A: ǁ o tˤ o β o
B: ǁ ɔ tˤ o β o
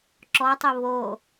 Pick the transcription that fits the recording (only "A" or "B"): B